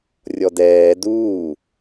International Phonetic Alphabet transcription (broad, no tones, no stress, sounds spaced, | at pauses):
rʲ ɔ d ɛː d uː